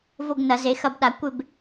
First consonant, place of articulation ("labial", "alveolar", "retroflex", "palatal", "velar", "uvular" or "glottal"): labial